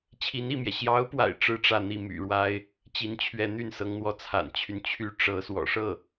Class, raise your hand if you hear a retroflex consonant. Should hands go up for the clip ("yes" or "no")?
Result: yes